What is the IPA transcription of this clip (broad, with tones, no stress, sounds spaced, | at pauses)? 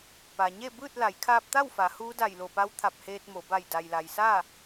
p a˩ ɲ e˥˨ b ɯː˥˨ t̚ l a˩˧ j kʰ aː˧ p̚ t̪ a˥˨ w f a˩˧ h uː˧˥ d a˧˩ j l o˧˩ p a˧˥ w t̪ʰ a˧˩ p̚ h eː˧ t̚ m o˩˧ b a˧˩ j d a˩ j l a˩ j s a˥˨